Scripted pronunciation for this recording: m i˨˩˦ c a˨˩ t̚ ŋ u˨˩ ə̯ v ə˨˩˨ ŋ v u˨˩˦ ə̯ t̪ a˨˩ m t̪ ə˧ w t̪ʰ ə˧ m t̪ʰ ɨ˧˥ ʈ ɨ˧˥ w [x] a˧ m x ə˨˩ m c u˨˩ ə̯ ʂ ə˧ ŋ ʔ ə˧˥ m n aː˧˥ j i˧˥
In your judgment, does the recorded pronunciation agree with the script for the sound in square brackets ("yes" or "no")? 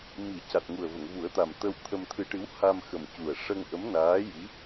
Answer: no